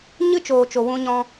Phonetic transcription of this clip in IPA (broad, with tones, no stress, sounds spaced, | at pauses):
ɲ ɨ˦ t͡ʃ oː˨ t͡ʃ o˨ w ũ˦ ɲ ɔ̃˦